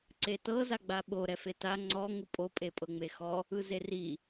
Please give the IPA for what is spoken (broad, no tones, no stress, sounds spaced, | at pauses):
ǀ e t ɤ z a ɡ͡b a ɓ o ɾ ɛ f e t a ŋ͡ǀ ɔ ŋ u pʼ o pʼ e pʼ ɤ ŋ͡m e x ɔ | ɯ z e r i